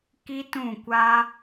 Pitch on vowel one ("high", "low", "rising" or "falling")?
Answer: high